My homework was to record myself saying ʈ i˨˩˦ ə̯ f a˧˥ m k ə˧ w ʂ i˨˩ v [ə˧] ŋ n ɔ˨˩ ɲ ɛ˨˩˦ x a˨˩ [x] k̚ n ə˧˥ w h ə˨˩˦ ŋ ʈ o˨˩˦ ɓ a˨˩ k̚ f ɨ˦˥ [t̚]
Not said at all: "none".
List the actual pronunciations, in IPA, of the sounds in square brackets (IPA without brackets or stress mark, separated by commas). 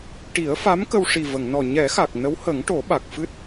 ə˨˩˨, none, t̚